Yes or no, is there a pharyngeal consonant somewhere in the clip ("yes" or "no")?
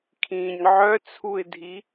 yes